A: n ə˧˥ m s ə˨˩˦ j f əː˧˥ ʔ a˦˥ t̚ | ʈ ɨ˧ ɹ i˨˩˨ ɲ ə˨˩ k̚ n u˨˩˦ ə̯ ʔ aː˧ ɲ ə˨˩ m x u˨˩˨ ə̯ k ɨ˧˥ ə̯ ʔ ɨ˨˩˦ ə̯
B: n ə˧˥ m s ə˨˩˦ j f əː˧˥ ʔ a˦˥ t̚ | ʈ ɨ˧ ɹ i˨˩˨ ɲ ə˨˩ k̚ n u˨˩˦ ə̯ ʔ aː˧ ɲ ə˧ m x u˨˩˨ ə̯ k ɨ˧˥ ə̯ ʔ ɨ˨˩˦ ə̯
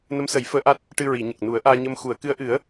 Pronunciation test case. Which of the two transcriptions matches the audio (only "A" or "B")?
B